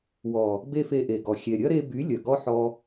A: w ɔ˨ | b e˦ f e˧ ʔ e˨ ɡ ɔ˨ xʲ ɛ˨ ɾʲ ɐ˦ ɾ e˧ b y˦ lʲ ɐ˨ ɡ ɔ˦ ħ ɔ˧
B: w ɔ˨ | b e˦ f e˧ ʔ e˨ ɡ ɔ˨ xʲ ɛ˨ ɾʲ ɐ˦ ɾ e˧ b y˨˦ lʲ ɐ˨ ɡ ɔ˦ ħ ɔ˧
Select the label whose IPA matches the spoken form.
B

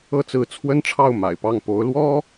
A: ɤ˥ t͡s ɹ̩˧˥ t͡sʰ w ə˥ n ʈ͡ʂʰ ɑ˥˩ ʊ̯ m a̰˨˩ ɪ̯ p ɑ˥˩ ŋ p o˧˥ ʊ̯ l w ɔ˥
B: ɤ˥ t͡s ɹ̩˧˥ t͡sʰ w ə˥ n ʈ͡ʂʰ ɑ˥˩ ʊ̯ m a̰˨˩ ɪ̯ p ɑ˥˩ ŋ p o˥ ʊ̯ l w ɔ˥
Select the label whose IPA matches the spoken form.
A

